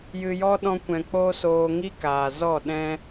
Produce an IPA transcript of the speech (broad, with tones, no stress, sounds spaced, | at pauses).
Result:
j ɨ˧ j ɔ˦ ɗ ɔ̃˦ kʷ ɛ̃˧ k͡p oː˦ s oː˧ ŋ i˦ k aː˨ z ɔ˦˨ ɗ ɛ̃˦